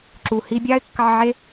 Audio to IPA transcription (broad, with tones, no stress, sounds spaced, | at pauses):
ǁ u˩ h i˧ bʲ ɑ˥ ɪ̯ kː ɑ˧ ʕ e˥